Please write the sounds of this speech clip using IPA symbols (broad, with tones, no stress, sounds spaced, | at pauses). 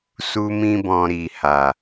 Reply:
s u˦ m ĩ˦ b ɔ̃˧ ɾ i˨ h a˨